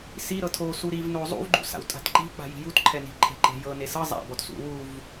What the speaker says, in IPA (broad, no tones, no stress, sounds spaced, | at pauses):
s i ɾ ɤ tʰ o s u ɾ i v n o zˤ ṵ v ɡ͡ǃ ṵ s a̰ w tʼ a̤ t ǃ i̤ k͡p a̤ j i̤ j u t ǃʰ ɛ n i̤ ǃʰ e̤ ǃ e̤ j ɤ n e s ɤ zˤ a̰ b ɔ t s ṵ w u v